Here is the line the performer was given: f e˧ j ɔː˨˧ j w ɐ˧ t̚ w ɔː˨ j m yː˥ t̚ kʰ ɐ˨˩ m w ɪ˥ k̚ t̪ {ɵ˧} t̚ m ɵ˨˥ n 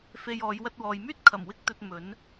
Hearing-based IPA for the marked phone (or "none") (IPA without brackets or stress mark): ɵ˧